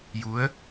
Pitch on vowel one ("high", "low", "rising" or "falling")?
rising